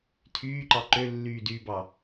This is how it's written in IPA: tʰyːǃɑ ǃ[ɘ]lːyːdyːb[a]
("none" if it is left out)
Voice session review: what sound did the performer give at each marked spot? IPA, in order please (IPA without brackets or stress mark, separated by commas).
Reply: ø, ɑ